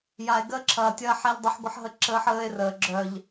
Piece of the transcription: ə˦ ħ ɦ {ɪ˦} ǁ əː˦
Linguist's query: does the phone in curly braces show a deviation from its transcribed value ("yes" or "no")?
yes